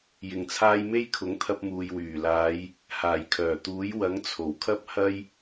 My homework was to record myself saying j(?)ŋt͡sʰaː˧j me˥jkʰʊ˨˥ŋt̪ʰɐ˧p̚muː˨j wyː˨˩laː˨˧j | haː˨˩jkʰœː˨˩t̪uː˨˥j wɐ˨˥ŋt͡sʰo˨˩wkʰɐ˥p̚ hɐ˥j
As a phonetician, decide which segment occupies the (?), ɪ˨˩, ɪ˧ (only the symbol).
ɪ˨˩